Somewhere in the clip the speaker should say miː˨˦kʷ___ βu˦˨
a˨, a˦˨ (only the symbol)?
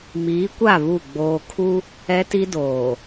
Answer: a˦˨